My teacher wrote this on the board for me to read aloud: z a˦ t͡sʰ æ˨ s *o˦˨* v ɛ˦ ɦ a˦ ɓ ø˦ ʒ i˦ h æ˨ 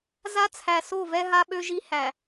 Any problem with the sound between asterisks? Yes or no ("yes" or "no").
no